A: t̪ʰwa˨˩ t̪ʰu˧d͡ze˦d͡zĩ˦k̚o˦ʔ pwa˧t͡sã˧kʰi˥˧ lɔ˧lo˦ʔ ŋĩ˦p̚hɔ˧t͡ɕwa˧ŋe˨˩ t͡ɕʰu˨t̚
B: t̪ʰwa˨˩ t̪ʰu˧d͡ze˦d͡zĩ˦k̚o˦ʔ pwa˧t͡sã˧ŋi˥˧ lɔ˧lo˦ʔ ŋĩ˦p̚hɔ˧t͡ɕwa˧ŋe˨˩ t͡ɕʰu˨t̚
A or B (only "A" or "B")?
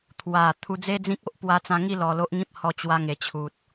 B